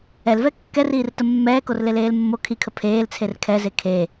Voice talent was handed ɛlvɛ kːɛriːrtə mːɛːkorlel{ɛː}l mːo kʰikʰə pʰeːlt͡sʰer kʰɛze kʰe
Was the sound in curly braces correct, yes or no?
no